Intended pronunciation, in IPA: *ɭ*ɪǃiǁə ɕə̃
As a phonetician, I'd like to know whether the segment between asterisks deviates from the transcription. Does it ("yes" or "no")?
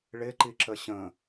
no